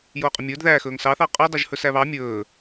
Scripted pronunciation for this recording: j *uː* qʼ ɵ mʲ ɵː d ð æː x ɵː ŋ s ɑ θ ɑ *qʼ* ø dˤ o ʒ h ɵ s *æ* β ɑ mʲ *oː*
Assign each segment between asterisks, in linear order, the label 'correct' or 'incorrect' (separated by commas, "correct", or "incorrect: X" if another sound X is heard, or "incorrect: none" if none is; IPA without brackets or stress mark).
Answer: incorrect: oː, correct, correct, incorrect: ɵː